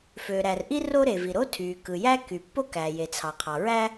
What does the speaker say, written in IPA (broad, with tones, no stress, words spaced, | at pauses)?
fø˩ɾæ˩rʔi˥ ro˥ɾe˩vi˩ ɾo˥tʰy˩ kɯ˩jæ˥ky˩ pːo˥kæ˩je˩ t͡sʰɑ˩qʰɑ˩ɹæ˥